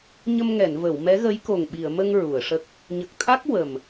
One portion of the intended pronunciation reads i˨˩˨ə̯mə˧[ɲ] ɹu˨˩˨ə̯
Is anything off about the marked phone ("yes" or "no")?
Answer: yes